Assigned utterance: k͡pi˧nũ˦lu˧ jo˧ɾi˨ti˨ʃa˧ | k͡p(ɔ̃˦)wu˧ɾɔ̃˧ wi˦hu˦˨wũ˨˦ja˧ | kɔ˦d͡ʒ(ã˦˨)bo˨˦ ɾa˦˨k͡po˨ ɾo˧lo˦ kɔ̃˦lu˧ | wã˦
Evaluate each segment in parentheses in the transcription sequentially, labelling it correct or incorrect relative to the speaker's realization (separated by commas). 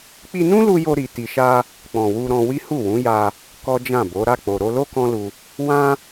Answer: incorrect, correct